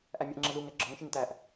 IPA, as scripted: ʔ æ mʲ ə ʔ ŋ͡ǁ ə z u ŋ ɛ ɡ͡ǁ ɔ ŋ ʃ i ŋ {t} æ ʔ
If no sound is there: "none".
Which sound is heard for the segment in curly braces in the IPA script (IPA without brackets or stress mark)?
t